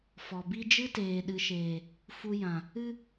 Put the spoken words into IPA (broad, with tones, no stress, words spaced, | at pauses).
fɔ˨bi˦ d͡ʒɨ˦teː˨ɗɨ˨ʃeː˨ | fu˧jã˨ | ɨ˦